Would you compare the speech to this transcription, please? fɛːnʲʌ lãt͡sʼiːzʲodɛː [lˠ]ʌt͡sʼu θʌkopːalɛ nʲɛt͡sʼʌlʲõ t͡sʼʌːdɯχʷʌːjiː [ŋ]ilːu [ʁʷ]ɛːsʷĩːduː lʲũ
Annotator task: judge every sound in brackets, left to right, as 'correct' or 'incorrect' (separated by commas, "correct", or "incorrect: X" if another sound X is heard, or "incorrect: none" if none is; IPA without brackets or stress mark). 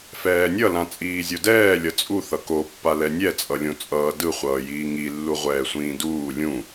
incorrect: lʲ, correct, correct